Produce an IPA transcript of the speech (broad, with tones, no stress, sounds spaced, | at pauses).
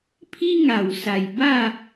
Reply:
pʰ i˦ ŋ a˨˩ w s a˨˩ j b a˥˧